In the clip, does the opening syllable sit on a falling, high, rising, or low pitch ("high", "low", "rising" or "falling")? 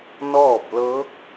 falling